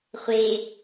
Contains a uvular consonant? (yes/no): yes